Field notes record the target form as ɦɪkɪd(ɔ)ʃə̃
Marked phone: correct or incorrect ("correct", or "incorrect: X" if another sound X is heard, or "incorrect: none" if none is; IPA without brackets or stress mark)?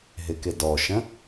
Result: correct